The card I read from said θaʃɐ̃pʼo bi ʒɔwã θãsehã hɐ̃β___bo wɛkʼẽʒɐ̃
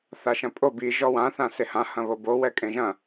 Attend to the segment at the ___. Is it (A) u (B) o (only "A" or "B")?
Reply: B